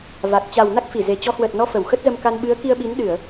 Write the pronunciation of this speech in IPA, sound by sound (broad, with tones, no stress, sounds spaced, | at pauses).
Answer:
v a˨˩ k̚ t͡ɕ a˨˩ w n a˦˥ k̚ f i˧˩ z e˨˩ t͡ɕ ɔ˨˦ h w əː˨˩ t̚ n ɔ˧ f ə˧˩ w x ə˦˥ t̚ z ə˧ m k a˧ n ɓ ɨ˨˦ ə̯ k i˧ ə̯ ɓ i˨˦ n ɗ ɨ˧˩˨ ə̯